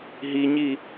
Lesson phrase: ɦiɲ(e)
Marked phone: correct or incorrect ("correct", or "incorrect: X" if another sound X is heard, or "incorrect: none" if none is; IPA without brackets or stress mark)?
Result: incorrect: i